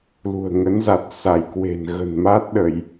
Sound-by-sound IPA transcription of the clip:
l ṳ˨˩ ə̯ ŋ ə˨˦ n z a˨˩ t̚ s a˧˩ j k w e̤˨˩ n ɣ ə̤˨˩ n m a˦˥ t̚ ɗ ə˧˩˨ j

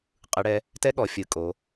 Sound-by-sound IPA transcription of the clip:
qʼ ɯ˨˦ ɽ ɛ˨˦ | t ɛ˦˥ ɠ ɔ˨˦ fʲ ɯ˨˦ kʼ o˨˦

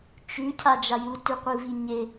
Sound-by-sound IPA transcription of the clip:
t͡ʃ ʉ cʰ a d͡ʒ a j u t ʉ qʷ ɨ v i ɲ e

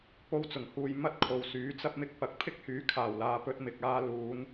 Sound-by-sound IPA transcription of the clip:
p o˧ w t͡s ʊ˨˩ ŋ h uː˨ j m ɐ˥ t̚ kʰ o˨ w s yː˨˥ t͡s ɐ˧ p̚ m ɪ˧ k̚ p ɐ˨˥ k̚ pʰ ɪ˥ k̚ h yː˨˥ kʰ aː˨˩ w l aː˨ p ɵ˧ t̚ m ɪ˨ k̚ aː˧ l uː˨˧ n

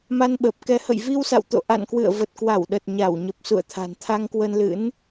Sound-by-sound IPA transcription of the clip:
m a˧ n ɓ əː˨˩ p̚ k ɛ˧ h ə̰˧˨ j v i˧ w s a̰˧˨ w t̪ o̰˧˨ ʔ a̰˧˨ n k w ɨ̰˧˨ ə̯ v ə˨˩ t̚ k w a˧˩ w ɗ ə˨˩ t̚ ɲ a˧˩ w ɲ ə˨˩ p̚ s ṵ˧˨ ə̯ t̪ʰ a̤˨˩ n t̪ʰ a˧ ŋ k w ə˧ n l ɨ̰˧˥ n

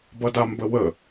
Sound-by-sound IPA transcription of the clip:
b ʌ d a m b ə w ə

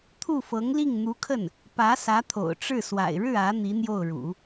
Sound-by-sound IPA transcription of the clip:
t̪ʰ u˥˩ f ɤ˧˥ ŋ l i˥˩ ŋ n̪ u˧˥ kʰ ə˥˩ n | p ä˧˥ s ä˧˥ t̪ʰ o̰˨˩ ʊ̯ ʈ͡ʂ ɻ̩˥˩ s w a̰˨˩ ɪ̯ ɻ ɻ̩˥˩ ä˧˥ n̪ i˧˥ n̪ j o˥˩ ʊ̯ ɻ ṵ˨˩˦

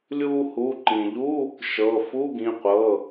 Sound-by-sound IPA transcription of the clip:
lʲ uː˧ h u˩˧˩ ǃ ĩ˩ ʎ u˧˥˧ | ʃ ɤ˩˧˩ f u˧˥˧ ɡ ĩ˩˧˩ qʷ ɤ˩˧˩

